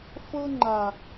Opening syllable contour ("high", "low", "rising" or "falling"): high